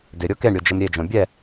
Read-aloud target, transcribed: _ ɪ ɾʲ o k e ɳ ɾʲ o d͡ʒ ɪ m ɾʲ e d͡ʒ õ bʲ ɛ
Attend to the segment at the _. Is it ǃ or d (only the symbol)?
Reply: d